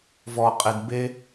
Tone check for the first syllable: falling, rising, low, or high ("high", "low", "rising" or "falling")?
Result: low